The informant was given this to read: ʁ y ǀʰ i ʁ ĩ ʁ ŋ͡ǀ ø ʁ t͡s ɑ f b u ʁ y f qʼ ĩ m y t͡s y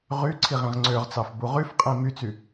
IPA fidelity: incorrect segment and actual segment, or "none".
none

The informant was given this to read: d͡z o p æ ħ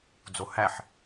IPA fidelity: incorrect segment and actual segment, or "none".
p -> h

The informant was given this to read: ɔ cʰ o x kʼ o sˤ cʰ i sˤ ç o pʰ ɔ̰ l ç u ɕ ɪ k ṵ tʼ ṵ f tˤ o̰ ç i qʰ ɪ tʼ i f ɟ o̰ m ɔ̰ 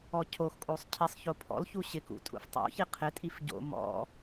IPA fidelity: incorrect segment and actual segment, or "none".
none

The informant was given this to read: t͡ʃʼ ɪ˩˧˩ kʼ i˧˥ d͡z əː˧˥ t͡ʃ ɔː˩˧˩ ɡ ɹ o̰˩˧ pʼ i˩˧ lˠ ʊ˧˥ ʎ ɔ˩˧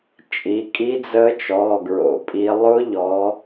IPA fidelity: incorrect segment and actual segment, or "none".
ɪ˩˧˩ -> i˩˧˩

